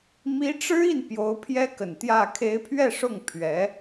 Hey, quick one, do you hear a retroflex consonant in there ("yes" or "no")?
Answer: yes